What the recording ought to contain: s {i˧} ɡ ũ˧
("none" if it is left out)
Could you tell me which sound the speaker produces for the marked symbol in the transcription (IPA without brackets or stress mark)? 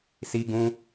i˧